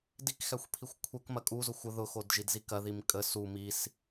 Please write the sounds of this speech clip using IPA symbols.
d i k x æ xʷ pʰ i xʷ kʷʰ ɛ k m ɐ kʼ u z ʊ xʷ ə ð ʊ x o d ʒ i d z i k ɐ ð i m kʼ ə s u m i s

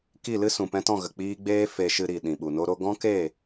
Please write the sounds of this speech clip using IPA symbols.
k i˦˨ l ɨ˦ s ũ˨ p ɛ̃˧ t ɔ̃˦˨ ɣ ə˨ k͡p iː˧ ɡ͡b eː˦ f e˧ ʃ ɨ˧ ɾ i˨ ɗ ĩ˨ ɓ u˨ n o˦ ɾ o˦ ɡ ɔ̃˦ k e˦˨

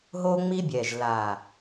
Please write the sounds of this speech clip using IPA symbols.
ɦ o˦ ŋ͡m i˦ bʲ ɛ˨ ʒ l a˨

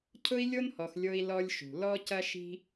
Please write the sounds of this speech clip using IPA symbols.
cʰ ʊ˥ i̯ lʲ o˥ n h ɔ˨ x lʲ o˦ i̯ l ɔ˦ lʲ ʃ ṳ˩ l ɔ˥ c ɐ˥ ʃ i̤˥

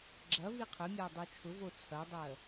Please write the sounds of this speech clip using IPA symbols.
ɡ͡ǁ ɐ v i qʰ ə mʲ a dˤ u t͡ʃʰ ʊ v o t͡sʰ ɐ dˤ ɜ

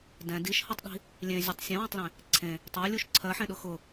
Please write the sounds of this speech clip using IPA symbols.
d ɛ̃ d i ʃ h ɤ tˤ ɗ i̤ | lʲ ẽ zʲ ʊ tˤ sʲ ẽ w ẽ tˤ l ẽ | ǀʰ ẽ | tˤ ɜ lʲ u ʃ ǀʰ ɜ ħ ẽ ɗ ʊ x ʊ

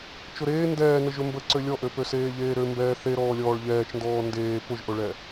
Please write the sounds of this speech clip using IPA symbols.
t͡ʃ ʊ ɾ eː n d ɛː n ə ʒ ø m b ə ǀ ø lʲ ɔ ʔ ø p ø s eː ʎ eː ɾ ø m b ɛː θ e ɾ ɔː lʲ ɔː ɭ ʎ ɛː t͡ʃ n d ɔː n d eː p ʊ ʒ ʔ ʊ ɭ ɛ

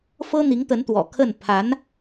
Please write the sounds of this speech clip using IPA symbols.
f ɤ˥ n̪ i˧˥ ŋ t̪ ə˧˥ n t̪ w ɔ̰˨˩ kʰ ə˥˩ n pʰ a˧˥ n

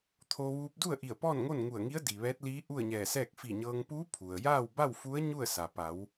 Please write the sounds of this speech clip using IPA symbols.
t̪ʰ o˧ ʋ uː˧ p̚ d u˥˨ ə̯ ʔ i˧˩ ə̯ p ɔː˥˨ n ŋ o˥˨ n ŋ u˧˩ ə̯ ŋ i˧˥ ə̯ d i˩ ʋ ɛː˧˥ t̚ l iː˧˥ ʔ u˥˨ ə̯ ɲ ɛː˧˩ s ɛː˥˨ k̚ f i˧˩ ɲ ɤː˧ ŋ p uː˧˥ pʰ u˩ ə̯ j aː˥˨ w b a˥˨ w f u˧˥ ə̯ ɲ u˥˨ ə̯ s a˩ p a˩˧ w

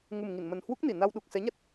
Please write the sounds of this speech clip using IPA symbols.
ŋ u˨˩ m ŋ i˧˩ n m ə˨˩ n h w u˦˥ k̚ n i˧˩ n a˧ w ɗ u˨˩ k̚ s ɛ˨˦ ɲ a˦˥ t̚

